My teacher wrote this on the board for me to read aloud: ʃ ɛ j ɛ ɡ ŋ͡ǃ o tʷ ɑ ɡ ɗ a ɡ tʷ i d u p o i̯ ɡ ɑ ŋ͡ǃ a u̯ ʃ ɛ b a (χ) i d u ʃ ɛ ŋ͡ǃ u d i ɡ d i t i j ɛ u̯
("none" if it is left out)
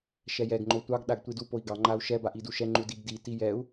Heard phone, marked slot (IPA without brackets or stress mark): ʔ